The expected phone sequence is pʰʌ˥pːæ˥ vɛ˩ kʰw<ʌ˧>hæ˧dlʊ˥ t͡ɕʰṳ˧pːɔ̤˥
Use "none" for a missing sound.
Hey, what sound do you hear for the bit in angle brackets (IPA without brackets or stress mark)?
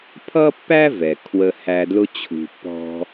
ə˧